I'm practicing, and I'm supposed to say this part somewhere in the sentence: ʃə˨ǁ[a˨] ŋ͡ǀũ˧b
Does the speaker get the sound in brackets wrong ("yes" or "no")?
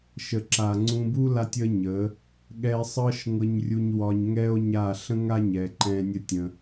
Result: no